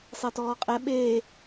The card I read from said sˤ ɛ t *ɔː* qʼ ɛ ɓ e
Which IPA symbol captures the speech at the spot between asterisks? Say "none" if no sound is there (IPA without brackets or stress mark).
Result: ɔː